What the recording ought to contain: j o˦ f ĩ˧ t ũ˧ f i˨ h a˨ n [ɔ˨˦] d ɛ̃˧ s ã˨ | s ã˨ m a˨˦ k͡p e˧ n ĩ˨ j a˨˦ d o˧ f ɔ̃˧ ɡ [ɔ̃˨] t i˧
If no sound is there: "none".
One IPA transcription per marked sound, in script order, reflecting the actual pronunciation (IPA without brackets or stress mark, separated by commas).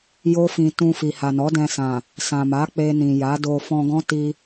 ɔ˨˦, ɔ̃˦